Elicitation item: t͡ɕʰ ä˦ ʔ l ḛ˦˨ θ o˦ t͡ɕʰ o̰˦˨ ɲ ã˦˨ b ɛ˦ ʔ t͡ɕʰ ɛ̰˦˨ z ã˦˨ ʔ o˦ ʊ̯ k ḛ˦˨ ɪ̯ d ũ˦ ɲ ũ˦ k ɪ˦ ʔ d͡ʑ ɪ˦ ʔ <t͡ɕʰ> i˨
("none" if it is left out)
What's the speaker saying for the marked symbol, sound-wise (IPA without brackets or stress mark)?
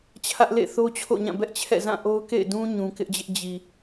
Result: d͡ʑ